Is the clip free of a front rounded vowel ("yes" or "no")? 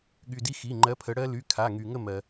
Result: no